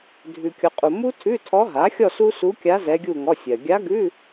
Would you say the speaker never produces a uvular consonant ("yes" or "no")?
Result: no